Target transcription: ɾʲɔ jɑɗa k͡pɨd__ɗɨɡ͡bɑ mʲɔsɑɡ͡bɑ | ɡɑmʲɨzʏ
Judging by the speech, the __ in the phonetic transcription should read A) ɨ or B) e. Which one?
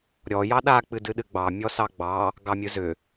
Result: A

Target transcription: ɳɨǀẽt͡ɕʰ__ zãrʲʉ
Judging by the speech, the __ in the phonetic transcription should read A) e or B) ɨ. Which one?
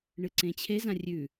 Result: A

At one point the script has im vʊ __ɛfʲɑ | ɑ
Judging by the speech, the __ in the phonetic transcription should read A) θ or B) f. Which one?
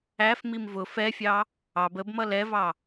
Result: B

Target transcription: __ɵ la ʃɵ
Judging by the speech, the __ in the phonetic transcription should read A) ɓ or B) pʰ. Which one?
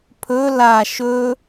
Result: B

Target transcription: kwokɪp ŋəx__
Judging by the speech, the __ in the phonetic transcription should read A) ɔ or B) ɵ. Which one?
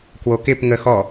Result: A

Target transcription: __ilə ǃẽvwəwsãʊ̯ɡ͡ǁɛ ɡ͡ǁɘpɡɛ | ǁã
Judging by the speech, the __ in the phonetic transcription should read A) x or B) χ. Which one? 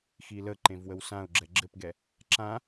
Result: A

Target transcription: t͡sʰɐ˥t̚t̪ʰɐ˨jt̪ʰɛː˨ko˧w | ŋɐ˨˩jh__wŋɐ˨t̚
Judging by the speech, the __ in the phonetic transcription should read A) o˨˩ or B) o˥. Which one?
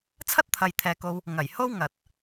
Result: B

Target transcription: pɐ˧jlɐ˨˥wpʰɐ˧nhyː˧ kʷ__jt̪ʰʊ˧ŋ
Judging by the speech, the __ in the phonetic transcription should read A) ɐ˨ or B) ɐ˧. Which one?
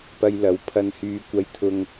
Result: B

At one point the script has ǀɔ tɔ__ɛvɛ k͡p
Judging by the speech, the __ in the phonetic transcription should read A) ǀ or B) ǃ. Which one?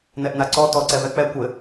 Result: A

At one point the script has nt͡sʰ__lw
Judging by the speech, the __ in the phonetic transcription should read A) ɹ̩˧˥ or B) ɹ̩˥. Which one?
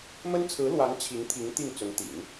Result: A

